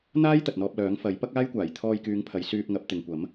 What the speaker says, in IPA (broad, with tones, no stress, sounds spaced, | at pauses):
n̪ aː˥ j t̪ ɐ˨ t̚ n̪ ɔː˧ p̚ l œː˨˥ ŋ f ɐ˨˥ j p ɐ˥ k̚ aː˥ j kʷ aː˨˩ j t̪ʰ ɔː˧ j k yː˨˧ ŋ pʰ ɐ˨˧ j s yː˧ p̚ ŋ ɐ˨˥ p̚ t̪ ɪ˨ ŋ kʷ ɐ˨˥ m